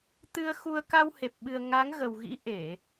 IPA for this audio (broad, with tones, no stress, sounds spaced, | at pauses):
t̪ ɨ˧ ə̯ x u˧ ə̯ k a˧ w h e˨˩ p̚ ɓ ɨ˨˩ ə̯ ŋ a˨˦ ŋ ɣ ə˨˩ w ɣ ḭ˧˥ ʔ e˧˩˨